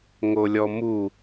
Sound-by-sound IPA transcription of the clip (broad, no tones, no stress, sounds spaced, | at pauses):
ŋ o lʲ ɔ m u